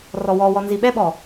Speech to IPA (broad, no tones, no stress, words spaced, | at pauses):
rɔwɔwɔ nziɓɛɓɔ